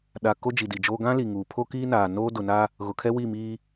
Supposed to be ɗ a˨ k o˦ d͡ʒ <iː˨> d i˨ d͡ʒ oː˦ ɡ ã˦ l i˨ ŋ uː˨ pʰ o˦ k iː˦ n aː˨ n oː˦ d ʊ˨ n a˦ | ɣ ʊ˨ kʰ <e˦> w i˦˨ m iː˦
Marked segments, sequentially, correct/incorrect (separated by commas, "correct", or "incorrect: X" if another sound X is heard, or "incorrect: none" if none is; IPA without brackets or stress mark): incorrect: i˨, incorrect: ɛ˦